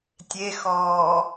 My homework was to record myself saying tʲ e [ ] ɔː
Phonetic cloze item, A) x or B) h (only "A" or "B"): A